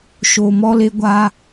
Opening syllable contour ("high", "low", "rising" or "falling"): low